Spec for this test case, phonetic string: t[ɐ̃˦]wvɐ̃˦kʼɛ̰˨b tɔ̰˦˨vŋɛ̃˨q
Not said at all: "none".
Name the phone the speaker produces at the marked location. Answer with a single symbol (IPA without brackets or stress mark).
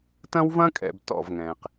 ɐ̃˦